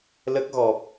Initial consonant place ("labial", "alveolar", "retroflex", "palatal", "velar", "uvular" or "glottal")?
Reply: alveolar